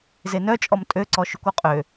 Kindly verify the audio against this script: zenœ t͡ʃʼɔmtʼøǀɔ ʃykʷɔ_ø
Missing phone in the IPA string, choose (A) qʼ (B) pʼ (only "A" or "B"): A